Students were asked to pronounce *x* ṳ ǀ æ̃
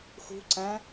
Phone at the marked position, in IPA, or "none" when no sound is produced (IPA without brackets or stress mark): x